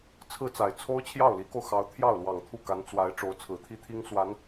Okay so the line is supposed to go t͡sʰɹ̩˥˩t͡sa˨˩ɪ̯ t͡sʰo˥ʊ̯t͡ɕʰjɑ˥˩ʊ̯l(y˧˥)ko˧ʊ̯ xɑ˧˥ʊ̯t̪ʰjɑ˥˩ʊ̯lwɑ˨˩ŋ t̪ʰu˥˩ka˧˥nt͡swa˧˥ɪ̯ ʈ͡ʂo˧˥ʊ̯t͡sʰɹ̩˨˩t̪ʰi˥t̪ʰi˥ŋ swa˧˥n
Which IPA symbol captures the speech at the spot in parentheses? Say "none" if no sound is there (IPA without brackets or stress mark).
i˧˥